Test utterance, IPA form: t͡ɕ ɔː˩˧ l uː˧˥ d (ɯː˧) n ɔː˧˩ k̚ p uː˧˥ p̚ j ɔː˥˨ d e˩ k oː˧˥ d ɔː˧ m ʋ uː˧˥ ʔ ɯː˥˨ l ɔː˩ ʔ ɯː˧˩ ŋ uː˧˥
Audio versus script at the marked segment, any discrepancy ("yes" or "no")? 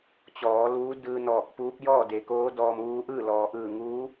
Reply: no